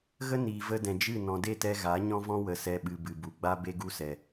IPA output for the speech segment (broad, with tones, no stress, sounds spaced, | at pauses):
ɣ ə˦ n iː˨ v ə˧ d ɛ̃˨ d͡ʒ ɨ˦˨ n ɔ̃˨ d e˦˨ t ɛ˧ ɣ a˨˦ ɲ ɔ̃˦ v ɔ̃˦ w ə˨ s ɛ˧ ɓ ɨ˨ b ɨ˨ b u˨ ɡ͡b a˦ b e˦ ɡ u˦ s ɛ˨